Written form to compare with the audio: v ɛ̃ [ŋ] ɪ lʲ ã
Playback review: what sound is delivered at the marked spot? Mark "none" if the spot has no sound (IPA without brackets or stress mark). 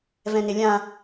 n